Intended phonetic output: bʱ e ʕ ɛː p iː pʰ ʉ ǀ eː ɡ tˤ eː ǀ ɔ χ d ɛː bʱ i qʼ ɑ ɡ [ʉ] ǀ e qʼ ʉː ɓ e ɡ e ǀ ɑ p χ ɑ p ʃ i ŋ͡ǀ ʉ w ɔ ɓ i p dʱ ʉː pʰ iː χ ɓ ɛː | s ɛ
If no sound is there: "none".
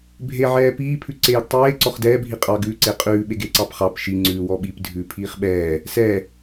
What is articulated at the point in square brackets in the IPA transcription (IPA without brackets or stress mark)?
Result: ʉ